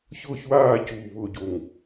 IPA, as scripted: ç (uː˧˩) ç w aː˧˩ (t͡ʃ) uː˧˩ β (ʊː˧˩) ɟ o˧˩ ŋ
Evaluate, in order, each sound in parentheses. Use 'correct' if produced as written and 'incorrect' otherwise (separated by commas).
incorrect, incorrect, correct